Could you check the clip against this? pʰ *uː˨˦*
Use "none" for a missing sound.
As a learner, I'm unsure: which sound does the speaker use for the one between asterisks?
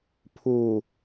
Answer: uː˨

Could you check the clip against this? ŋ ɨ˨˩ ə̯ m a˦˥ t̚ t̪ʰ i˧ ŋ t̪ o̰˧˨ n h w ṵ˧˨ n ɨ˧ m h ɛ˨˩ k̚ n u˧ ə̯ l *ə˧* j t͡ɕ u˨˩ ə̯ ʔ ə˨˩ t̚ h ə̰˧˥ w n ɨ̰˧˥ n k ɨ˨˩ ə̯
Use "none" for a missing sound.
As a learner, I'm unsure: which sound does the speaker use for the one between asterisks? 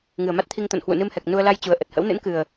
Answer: a˧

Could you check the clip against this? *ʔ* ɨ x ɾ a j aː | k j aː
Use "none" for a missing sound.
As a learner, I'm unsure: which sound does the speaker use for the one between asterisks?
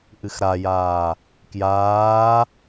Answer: ʔ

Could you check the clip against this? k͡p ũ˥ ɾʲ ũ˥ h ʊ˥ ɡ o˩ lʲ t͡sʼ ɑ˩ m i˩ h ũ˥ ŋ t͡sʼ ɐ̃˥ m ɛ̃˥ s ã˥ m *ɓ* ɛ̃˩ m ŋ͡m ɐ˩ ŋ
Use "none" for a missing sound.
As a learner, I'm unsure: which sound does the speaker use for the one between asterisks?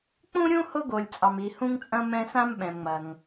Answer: ɓ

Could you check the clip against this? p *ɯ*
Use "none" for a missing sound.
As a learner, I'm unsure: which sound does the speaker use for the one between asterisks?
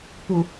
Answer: u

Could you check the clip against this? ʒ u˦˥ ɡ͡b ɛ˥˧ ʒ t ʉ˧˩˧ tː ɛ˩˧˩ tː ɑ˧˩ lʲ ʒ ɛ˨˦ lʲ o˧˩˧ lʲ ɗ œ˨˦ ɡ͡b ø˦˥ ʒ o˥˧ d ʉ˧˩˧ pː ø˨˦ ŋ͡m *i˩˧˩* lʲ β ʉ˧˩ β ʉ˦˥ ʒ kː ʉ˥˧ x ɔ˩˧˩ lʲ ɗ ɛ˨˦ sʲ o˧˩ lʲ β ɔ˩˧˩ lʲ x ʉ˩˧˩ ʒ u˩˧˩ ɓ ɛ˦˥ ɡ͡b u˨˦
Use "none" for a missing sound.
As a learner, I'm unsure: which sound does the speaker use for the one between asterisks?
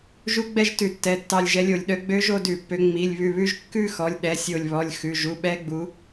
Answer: i˩˧˩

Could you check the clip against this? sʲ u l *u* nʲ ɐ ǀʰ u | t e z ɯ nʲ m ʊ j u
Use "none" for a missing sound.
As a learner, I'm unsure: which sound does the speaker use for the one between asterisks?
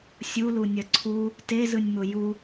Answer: u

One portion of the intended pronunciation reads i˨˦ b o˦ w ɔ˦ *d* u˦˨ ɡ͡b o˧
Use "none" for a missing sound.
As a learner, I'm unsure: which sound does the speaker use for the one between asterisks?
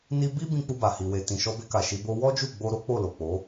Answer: d͡ʒ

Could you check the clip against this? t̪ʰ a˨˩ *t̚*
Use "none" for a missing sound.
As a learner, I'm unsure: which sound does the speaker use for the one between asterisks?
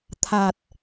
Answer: t̚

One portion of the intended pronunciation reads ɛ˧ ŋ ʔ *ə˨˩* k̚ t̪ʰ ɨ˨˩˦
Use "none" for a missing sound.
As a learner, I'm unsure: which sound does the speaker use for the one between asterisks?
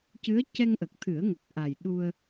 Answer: ə˨˩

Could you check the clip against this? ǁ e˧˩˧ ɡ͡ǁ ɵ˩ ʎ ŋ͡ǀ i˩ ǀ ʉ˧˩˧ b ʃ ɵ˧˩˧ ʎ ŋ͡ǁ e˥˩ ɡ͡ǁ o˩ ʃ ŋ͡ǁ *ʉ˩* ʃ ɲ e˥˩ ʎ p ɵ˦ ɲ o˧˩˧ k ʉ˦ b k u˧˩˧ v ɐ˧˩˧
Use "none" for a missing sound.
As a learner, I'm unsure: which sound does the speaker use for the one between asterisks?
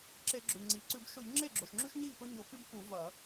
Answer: ʉ˦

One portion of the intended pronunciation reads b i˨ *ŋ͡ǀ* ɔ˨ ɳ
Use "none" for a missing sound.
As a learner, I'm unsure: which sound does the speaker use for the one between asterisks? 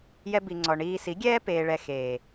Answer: ŋ͡ǀ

